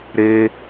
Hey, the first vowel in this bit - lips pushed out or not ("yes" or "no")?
no